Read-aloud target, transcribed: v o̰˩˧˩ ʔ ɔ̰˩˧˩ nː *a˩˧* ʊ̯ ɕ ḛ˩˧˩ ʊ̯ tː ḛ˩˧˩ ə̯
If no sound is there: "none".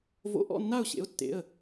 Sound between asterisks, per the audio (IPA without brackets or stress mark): a˥˩